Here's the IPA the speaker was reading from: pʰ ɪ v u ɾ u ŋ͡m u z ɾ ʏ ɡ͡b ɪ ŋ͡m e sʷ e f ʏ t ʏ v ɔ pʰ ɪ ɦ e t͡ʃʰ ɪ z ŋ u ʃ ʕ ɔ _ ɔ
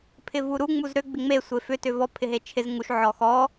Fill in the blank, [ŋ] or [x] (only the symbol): x